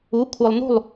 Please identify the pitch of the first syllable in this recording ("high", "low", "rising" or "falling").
rising